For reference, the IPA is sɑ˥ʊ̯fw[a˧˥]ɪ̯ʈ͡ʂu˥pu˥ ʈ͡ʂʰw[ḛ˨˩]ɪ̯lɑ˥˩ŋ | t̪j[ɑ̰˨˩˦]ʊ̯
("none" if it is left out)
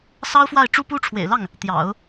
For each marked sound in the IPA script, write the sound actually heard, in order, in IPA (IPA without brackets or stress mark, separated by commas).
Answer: a˥˩, ḛ˨˩, ɑ̰˨˩˦